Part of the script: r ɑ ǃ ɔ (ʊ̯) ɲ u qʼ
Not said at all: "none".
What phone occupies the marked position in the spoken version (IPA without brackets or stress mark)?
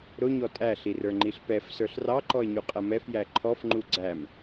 ɪ̯